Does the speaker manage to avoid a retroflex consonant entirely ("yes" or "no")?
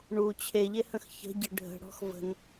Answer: no